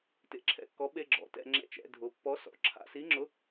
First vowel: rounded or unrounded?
unrounded